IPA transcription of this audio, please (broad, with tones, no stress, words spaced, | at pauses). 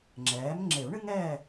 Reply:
ŋ͡ǁɛː˨˥m ŋ͡ǁe˨˩˦u̯ɳɨ˦ŋɛː˦˨